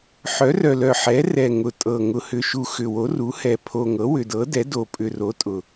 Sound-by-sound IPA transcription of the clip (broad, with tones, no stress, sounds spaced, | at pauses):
ħ œ˩˥ r œ˨˩ l œ˨˩ ħ ɛ˩˥ r ɛ˨˩ ŋ ʊ˨˩ tʼ ɤ˨˩ ŋ ʊ˨˩ h ʏ˨˩ ʃ u˨˩ x ʏ˨˩ w o˩˥ r u˩˥ h ɛ˨˩ pʰ o˨˩ ŋ ɤ˩˥ w ʏ˨˩ d ɤ˩˥ d ɛ˩˥ d o˨˩ pʼ ʏ˨˩ r o˩˥ tʼ ʊ˨˩